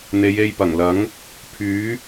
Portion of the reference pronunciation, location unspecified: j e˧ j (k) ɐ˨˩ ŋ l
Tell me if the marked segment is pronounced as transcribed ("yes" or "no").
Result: no